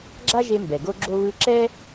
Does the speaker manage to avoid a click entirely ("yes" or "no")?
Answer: no